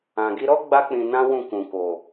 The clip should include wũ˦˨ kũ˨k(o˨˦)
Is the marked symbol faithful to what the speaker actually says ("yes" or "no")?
no